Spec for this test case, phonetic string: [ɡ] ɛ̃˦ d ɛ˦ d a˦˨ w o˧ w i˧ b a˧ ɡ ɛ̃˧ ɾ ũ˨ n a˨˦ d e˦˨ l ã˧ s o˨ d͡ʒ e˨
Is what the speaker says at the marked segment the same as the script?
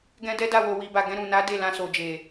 yes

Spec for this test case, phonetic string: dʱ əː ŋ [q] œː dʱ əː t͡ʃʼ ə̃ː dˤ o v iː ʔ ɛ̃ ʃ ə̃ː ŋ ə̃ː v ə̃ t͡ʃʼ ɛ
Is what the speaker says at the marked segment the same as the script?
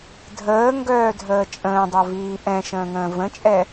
no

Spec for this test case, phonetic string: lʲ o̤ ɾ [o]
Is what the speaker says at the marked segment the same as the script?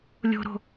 no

